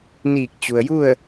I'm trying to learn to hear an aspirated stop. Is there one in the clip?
no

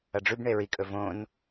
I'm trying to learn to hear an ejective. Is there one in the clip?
yes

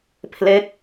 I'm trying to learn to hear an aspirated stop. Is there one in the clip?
yes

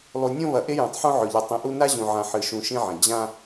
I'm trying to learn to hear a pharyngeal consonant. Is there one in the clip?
yes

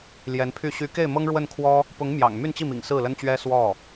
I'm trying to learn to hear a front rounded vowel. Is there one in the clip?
yes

